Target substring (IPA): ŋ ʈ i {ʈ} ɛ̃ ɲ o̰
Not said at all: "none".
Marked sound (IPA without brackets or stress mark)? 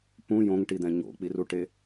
d̪